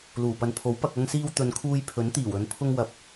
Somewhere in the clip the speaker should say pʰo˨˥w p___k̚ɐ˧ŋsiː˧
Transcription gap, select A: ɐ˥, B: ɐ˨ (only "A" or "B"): B